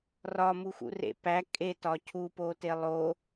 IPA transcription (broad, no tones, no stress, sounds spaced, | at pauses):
r ɒ m u x ṵ r ḛ p æ kʼ e t ɒ cʰ u p o t e lˠ o